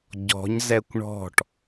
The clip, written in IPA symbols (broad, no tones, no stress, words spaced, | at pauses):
ɟɔ̤ɲ zɛkʷɳɔ̤ʈ